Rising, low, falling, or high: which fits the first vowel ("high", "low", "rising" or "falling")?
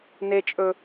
high